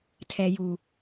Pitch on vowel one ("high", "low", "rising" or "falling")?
low